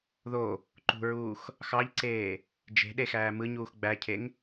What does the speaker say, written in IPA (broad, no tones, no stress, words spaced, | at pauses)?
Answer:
ðo | ǃṳɹuːx | xɑʎǀeː | d͡ʒe̤ɗe xæːmɯɲuːx ɡ͡bæcʰeŋ